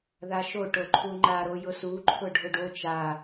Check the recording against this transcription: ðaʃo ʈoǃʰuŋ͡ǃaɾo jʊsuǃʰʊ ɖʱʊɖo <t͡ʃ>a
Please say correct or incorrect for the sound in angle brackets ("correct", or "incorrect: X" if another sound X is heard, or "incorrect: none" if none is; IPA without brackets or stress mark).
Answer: correct